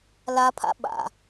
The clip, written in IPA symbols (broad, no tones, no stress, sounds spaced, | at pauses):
l a pʰ a̰ ɓ a̰